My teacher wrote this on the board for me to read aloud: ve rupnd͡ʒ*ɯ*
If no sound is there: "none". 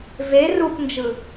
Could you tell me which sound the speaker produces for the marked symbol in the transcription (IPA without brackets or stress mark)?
ɯ